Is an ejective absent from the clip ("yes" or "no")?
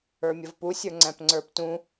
yes